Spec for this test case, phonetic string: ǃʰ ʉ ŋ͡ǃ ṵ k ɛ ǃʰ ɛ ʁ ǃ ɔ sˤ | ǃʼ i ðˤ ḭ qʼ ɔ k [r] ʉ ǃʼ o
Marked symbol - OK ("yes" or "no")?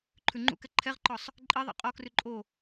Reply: yes